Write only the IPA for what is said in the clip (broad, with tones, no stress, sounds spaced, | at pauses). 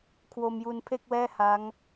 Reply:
kʰ w o˧ m j u˧ n pʰ e˥˩ k̚ w ɛː˥˩ h a˦˥ ŋ